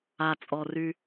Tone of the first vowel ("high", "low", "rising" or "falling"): low